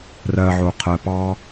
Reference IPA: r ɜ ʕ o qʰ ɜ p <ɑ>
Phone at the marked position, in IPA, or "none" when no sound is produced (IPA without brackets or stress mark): ɑ